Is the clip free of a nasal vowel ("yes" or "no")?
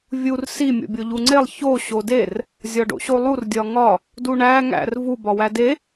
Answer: yes